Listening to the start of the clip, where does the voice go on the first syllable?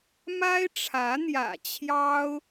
high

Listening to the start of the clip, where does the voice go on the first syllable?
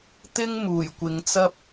high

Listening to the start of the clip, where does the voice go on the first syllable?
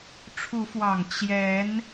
rising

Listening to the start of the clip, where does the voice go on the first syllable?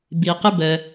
low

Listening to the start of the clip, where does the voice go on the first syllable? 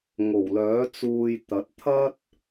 low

